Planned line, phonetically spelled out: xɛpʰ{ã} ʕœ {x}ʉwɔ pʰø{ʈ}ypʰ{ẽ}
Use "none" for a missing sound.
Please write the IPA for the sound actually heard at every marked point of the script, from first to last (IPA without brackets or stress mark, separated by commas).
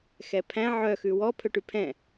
æ̃, x, ʈ, ɛ̃